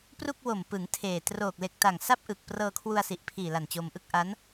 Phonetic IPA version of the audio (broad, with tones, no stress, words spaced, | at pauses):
pru˥˩k̚wo˨˩m pɯ˩˦ŋ tʰeː˨˩ troː˨˩k̚le˨˩k̚ ta˨˩ŋsa˥˩p̚ʔɯ˨˩k̚ prɤː˧kʰwu˧a̯ si˨˩ʔpʰiː˨˩la˨˩n t͡ɕo˧mʔɯ˥˩k̚ ʔa˦˥n